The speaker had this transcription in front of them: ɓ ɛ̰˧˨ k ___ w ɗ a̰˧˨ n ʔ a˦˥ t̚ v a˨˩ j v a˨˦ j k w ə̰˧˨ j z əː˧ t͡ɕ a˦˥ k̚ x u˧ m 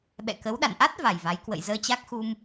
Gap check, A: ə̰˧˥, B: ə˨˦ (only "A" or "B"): B